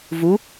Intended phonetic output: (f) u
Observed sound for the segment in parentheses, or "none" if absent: v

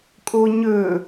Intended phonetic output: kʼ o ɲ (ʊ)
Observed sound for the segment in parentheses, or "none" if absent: ɵ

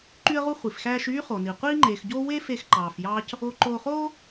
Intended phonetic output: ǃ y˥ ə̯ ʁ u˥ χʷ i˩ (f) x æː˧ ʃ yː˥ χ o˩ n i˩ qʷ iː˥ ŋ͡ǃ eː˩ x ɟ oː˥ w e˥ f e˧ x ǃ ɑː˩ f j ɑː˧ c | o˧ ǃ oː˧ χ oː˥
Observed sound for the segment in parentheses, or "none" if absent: f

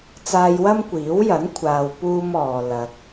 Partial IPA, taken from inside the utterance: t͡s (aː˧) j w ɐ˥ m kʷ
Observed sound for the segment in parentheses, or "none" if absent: aː˧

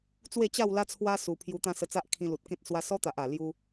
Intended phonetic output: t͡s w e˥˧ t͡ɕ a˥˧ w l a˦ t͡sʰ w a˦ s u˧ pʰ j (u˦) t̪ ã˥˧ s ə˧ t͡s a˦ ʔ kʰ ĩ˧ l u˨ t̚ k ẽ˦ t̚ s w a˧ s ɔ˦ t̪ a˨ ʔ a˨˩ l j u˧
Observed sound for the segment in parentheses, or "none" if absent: u˧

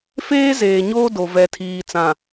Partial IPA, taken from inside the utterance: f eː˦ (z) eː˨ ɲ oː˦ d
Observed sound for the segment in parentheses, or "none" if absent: z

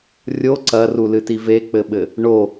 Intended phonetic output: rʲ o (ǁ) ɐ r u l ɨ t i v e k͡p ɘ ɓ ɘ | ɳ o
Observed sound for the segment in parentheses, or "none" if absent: ǀ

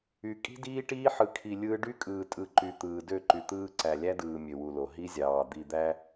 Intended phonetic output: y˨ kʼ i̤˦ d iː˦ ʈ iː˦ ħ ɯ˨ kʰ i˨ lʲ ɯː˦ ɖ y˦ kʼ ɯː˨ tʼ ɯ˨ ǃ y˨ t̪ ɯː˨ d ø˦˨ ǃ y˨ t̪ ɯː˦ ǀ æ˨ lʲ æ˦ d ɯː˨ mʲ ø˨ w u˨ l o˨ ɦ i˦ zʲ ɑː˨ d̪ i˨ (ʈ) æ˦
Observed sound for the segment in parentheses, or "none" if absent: d̪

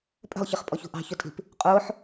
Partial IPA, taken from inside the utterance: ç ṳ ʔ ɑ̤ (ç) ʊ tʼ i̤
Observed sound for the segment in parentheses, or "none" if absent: ç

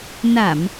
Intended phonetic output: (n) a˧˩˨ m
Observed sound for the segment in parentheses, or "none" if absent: n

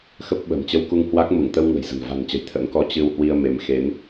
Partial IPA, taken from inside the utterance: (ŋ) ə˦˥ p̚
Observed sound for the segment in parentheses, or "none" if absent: x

